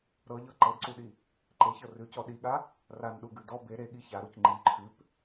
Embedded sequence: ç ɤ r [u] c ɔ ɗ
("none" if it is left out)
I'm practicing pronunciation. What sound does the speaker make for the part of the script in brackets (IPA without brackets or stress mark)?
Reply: ʉ